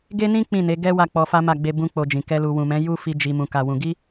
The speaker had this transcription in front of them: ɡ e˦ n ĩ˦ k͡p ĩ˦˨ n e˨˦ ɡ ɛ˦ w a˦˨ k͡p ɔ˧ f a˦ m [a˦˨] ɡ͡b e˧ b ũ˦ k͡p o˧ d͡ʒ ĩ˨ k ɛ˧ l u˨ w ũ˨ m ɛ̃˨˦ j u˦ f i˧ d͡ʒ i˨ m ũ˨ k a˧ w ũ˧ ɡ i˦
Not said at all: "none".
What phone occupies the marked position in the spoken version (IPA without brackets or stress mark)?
a˦˨